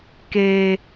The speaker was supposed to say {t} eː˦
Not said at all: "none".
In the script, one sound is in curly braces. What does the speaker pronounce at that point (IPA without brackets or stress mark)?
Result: k